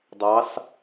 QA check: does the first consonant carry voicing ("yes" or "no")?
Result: yes